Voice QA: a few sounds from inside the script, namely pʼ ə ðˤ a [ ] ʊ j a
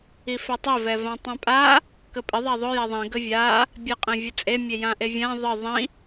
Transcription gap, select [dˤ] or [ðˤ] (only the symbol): ðˤ